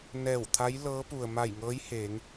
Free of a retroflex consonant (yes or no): yes